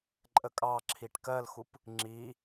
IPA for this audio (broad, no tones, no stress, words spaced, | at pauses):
ǃʼəkʼɑǁʰiʈ kɜlxup | ŋ͡ǁi